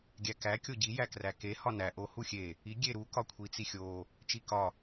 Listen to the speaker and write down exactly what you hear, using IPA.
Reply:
ɡʲ æ k æ kʲ o ɟ i j æ k r æ k e h ɒ n æ ʔ o h u xʲ e | i ɡʲ e ɾ u k ɒ kʷʰ i t͡s i xʲ o | t͡ʃ i k ɒ

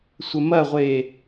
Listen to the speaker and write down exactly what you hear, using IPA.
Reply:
sʷ ə m ɐ ʁʷ e

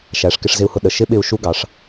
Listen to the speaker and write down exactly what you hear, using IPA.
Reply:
ʃ æ˩˧ ʂ k ɪ˧ ʂ z ɪ˧ u̯ h ʊ˧ ɗ ə˩ ʃ ɪ˧˥ ɓ ɪ˧ u̯ ʃ u˧˥ ɡ ɑ˩˧ ʂ

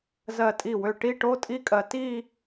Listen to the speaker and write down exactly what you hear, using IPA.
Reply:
z ɜ˧˩ tʼ i˧˩ w ø˧˩ ʈ i˥˧ ʈ o˥ tʼ i˥ kʼ ɜ˧ t i˥˧

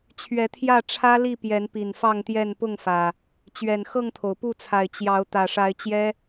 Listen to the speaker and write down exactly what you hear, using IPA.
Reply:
t͡ɕʰ ɥ ɛ˨˦ t̪ʰ j ä˥˨ ʈ͡ʂʰ ä˦ l i˥˨ p j ɛ˨˦ n p i˨˩ n f ɑ˥˨ ŋ t̪ j ɛ˥˨ n p ʊ˥˨ ŋ f ä˨˩ | t͡ɕ ɥ ɛ˨˩ n x ɤ˥˨ ŋ t̪ʰ o˩ ʊ̯ p u˥˨ t͡sʰ a˨˩ ɪ̯ t͡ɕ j ɑ˨˦ ʊ̯ t̪ ä˨˩ ʂ a˨˦ ɪ̯ t͡ɕ j ɛ˦

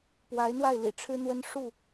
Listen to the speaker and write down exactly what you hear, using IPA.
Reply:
p w a˨˦ ɪ̯ n̪ w a˥˨ ɪ̯ l ḭ˨˩ ʈ͡ʂʰ ɻ̩˦ n̪ w ə˦ n ʂ u˥˨

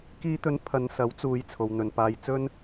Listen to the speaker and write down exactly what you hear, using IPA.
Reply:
k iː˨˧ t̪ ɵ˨˥ n pʰ ɐ˨˧ n s ɐ˨˥ w t͡s uː˨˧ j t͡sʰ o˨ w n̪ ɵ˨ n p aː˧ j t͡s ɵ˧ n

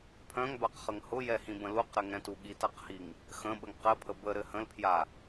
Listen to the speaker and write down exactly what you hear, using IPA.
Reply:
pʰ œ̃ ŋ b a q χ ə ŋ h ʊ j ɛ h ĩ b ə̃ l u q ɾ ɘ ŋ ɛ̃ t u ɠ i t a q h i ŋ | x ə̃ ɓ ə ŋ q ɘ pʰ ə b ə ɾ ɘ h ə̃ l pʰ j a

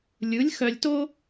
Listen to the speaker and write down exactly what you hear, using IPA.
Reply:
lʲ ɯ˨˥ lʲ x œ˧ lʲ t o˥

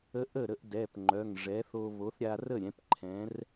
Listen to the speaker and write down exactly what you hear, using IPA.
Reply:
ə˧˥ ʔ ə˥˩ ɾ ə˧ ʔ d ɛ˩˧˩ p ŋ͡ǃ œ˩˧˩ ŋ ʐ ɛ˩˥ θ o˧ β o˩˥ θ ɾʲ a˧ r ə˥˩ ɾʲ ɛ̃˩˥ p ǃʰ ɛ̃˩˥ r

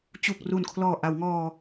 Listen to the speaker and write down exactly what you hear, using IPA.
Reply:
t͡ɕ u˨˩ k̚ r u˨˩ n kʰ l ɔː˨˩ ʔ a˩˦ w ŋ ɔː˧

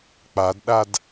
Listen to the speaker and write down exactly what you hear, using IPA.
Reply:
k͡p a d ɗ a d

